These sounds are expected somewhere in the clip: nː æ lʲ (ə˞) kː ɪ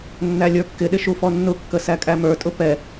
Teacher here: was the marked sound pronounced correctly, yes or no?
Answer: yes